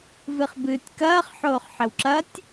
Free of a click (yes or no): no